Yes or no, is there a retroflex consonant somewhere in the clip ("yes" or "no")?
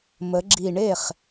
yes